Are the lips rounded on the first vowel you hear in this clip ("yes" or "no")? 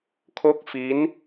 yes